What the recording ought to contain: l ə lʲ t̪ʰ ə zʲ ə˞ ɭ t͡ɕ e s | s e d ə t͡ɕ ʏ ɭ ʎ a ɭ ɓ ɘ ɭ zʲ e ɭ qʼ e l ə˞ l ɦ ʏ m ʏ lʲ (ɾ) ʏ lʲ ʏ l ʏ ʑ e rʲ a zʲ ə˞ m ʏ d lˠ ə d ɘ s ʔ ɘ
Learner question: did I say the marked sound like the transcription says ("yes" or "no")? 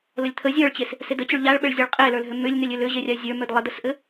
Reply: no